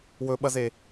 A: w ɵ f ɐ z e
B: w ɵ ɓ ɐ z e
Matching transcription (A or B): B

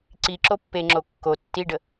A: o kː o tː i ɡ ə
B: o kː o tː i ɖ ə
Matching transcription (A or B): B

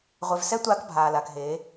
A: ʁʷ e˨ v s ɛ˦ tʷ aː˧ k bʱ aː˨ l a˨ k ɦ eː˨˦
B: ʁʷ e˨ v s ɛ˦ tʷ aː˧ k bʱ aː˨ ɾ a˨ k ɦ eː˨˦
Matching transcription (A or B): A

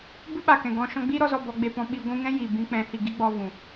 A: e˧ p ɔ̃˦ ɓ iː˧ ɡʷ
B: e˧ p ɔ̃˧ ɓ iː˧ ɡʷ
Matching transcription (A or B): B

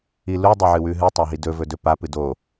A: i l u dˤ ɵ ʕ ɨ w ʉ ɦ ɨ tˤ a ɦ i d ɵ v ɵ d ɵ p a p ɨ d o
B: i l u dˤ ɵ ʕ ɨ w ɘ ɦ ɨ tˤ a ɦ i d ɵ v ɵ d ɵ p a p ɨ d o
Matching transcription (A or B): A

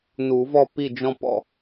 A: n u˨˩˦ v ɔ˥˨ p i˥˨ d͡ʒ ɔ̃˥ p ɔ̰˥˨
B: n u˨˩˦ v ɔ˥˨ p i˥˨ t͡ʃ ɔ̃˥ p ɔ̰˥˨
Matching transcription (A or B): A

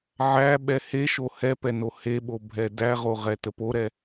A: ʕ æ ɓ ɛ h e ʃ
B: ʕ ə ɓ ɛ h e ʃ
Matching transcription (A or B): A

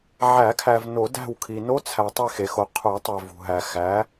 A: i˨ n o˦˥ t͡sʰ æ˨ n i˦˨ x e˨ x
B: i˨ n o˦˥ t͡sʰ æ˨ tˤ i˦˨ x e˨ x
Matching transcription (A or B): B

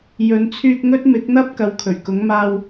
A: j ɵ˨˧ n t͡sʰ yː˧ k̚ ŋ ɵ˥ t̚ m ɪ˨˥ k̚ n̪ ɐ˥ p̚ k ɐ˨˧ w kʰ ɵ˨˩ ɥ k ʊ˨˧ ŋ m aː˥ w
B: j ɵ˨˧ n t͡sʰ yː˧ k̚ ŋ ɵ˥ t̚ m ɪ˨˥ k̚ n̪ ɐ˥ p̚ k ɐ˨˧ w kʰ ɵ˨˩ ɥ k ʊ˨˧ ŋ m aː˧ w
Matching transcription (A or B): B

